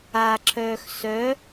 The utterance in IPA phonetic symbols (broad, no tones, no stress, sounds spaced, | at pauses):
a ǁʰ œː x s œ